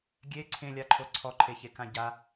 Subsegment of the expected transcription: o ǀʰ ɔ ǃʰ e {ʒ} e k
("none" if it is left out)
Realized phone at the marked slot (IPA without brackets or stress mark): ç